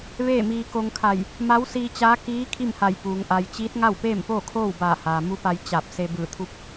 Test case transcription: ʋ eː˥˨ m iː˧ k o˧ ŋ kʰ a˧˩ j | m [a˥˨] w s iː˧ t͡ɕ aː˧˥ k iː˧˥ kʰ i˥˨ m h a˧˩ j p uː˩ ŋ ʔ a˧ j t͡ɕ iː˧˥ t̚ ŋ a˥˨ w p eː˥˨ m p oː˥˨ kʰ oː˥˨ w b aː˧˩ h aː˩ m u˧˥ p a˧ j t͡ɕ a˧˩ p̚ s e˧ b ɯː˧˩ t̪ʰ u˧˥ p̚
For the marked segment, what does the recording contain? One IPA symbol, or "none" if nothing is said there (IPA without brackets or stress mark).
a˧˥